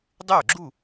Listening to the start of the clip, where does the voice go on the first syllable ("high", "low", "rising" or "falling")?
falling